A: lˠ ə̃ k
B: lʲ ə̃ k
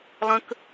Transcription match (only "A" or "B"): A